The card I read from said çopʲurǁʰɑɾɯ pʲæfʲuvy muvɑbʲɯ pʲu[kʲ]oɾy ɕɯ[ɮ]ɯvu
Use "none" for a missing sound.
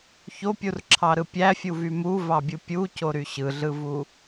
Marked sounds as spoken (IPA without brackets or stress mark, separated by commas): c, ɮ